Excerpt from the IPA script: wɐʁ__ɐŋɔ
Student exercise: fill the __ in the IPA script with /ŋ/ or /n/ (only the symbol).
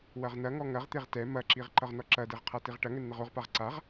n